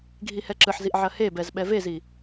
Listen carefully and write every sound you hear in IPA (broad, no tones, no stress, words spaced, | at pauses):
ɡʱihɛǁɯħziʔ ʕɐhebɛz ɓɛvezi